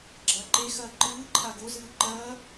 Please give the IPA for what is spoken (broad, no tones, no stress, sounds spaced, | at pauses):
ɡ͡ǁ ɐː ǃ e x ɐː ǃ ɨː ǃʰ a ɡ o z ɨː ǃ ɐː